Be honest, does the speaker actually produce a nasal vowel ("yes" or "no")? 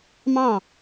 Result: yes